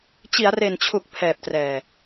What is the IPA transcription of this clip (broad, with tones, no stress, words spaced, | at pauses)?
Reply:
t͡ɕi˩˦a̯re˨˩nt͡ɕʰu˨˩k̚ pʰɛː˨˩p̚trɛː˨˩